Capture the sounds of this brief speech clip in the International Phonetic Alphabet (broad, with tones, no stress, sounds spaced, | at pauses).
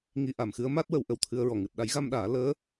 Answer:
ŋ i˧ ʔ a˨˩˨ m x ɨ˧˥ ə̯ m a˦˥ t̚ w ə˨˩˦ w ʔ ə˨˩ w t̪ʰ ɨ˧ ə̯ ɹ ɔ˨˩ ŋ ɨ˨˩ t̚ ɗ a˨˩˦ j ɣ a˧ m ɗ aː˨˩˦ l əː˧˥